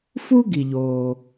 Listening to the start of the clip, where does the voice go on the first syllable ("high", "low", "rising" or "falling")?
high